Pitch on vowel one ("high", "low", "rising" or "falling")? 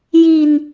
low